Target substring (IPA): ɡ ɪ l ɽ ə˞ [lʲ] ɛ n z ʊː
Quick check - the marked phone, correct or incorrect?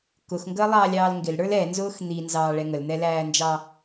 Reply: incorrect